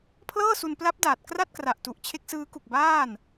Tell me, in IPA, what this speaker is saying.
pʰ l ɤː˥˩ s u˧ n p l a˦˥ p̚ d aː˨˩ t̚ k r a˥˩ t̚ k r a˨˩ ʔ t u˨˩ ʔ t͡ɕʰ e˦˥ k̚ s ɯː˦˥ k u˨˩ k̚ b aː˥˩ n

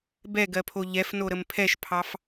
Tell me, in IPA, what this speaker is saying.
b ɛ ɡ ɜ pʰ o ʎ ɛ f n o ɾ ə m pʰ ɛ ʃ pʰ ɑ f

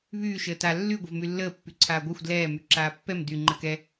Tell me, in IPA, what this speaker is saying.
β yː ʃ əː t a lː y ɡʷ ə v m y lː əː pː y ǀʰ aː ɡʷ a xʷ d l ɛː m y ǁ aː pː ɛ m d y ŋ͡ǃ ə k ɛ

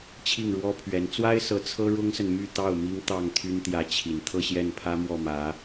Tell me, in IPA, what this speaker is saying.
t͡ɕʰ i˥˩ ŋ ɻ w ɔ˥ pʰ ɥ ɛ˧˥ n t͡s w a˥ ɪ̯ s ɤ˧˥ t͡sʰ ɤ˥ ɻ ʊ˥ ŋ s ə˨ n m y˥˧ t̪ ɑ˥˩ ʊ̯ m i˥ ŋ t̪ ɑ˥˩ ŋ t̪ʰ y˥ n t̪ j ä˧˥ t͡ɕʰ i˨˩ n t̪ʰ ɤ˥˧ ɕ j ɛ˥˩ n pʰ ä˥ m w ɔ˥˩ m ä˧˥

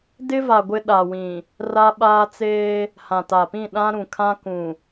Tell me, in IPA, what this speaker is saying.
d ɪ˦ v a˨ ɡʷ ɪ˦ ɗ a˨ w ĩ˨ | r a˦ ɓ aː˦ t͡s eː˦ | h ã˨ t a˨ p ĩ˦˨ ɗ ã˦ ɾ ũ˨ kʰ ã˦ k ũ˨

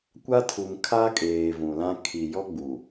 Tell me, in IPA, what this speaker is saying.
kʷ a˦ tʰ u˨ m kʰ a˦ kʼ eː˨ v ũ˨ l ã˦ kʰ i˨ j ɔ˦ ɡ͡b u˨

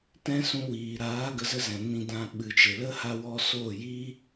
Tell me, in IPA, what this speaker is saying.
t ɛ̃˦ s ũ˧ w iː˨ ɾ aː˨˦ ɡ ə˧ z ə˦ z ɛ̃˨ n ĩ˧ d ã˧ ɓ ɨ˨ t͡ʃ e˨ l ə˦ h a˦ w ɔ˦ s oː˦˨ j iː˦

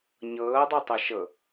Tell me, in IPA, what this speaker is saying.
ɲ ɤː dˤ o tˤ ɤ ʃ ɤ

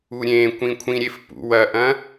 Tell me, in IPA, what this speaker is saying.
u ɾʲ ẽ kʷ ĩ kʷʰ ĩ ɾʲ e f p ṵ w ɐ ʔ ɐ̃

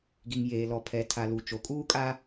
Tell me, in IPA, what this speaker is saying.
ɡ i˨ ŋ j eː˨ l ɔ˨ pʰ ɛ˨ tʰ a˨ l u˨ t͡ʃ o˨ kʼ uː˦ kʼ a˦

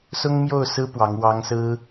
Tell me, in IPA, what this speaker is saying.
s ʊ˥ ŋ m j o˥˩ ʊ̯ s ɹ̩˥ p w ɑ˧˥ ŋ w ɑ˥ ŋ s ɹ̩˥

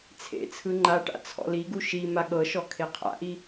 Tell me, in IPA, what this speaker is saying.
t͡sʰ ḛ t͡sʰ ɯ ŋ͡ǃ a ʈ a̰ t͡sʰ ɔ̰ l i ɡ u ʃ i m a ɠ ɤ ʃ ɔ kʰ e qʰ a̰ ʔ i

